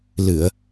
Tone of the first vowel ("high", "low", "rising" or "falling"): low